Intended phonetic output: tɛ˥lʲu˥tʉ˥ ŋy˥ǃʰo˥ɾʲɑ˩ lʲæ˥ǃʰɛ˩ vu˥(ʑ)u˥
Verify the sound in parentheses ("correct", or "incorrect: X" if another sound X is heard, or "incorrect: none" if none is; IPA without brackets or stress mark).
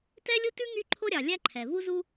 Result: incorrect: z